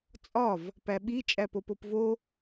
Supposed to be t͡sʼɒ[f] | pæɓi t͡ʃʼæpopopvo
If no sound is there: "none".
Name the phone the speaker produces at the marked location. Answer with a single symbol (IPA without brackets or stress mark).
v